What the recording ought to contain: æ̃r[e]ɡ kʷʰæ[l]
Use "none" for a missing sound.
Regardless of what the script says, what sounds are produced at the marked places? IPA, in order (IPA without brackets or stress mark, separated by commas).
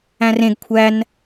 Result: ẽ, n